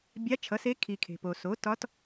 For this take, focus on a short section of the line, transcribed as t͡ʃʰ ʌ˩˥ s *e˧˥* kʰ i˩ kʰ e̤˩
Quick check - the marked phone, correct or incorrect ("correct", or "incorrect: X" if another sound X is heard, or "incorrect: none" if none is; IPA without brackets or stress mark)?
correct